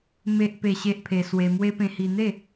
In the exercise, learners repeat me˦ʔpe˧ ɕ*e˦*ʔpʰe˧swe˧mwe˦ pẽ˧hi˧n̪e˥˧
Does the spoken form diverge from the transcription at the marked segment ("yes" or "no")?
no